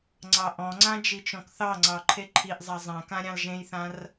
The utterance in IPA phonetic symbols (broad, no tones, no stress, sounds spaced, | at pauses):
ŋ͡ǀ ɑ ʔ ɔ̃ ŋ͡ǀ ã d͡ʒ i t͡ʃ ɔ̃ k θ ɑ ŋ͡ǀ ɑ ǃʰ e ǃʰ i ʔ zˤ a zˤ ã k ã ɾʲ ɑ̃ l ʒ ẽ j θ ã r